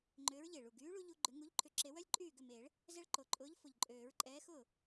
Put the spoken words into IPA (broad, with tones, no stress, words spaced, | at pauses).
ŋ͡ǃʏː˨˥ɹʎe˨˩ ɭu˨˩ɡyː˨˥ɭu˦ ʎu˦ ɡ͡ǃʏ˨˥ ŋu˨˥ʎ ǃʰʏ˨˩ǁe˨˩˦wœ˦lʲ ǃʼyː˥˩ɡʏ˥˩meː˨˩˦ɭ | zɛ˦ɭǃo˨˩ǃʼʊː˨˥ʎ fʊ˨˩ʎ ǃʼøː˨˩˦ɹǃʼɛː˨˥xʊː˥˩